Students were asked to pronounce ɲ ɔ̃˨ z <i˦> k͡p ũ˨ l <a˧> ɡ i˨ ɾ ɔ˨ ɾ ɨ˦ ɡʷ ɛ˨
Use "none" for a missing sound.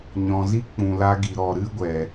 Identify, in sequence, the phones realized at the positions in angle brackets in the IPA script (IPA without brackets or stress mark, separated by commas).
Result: i˦, a˧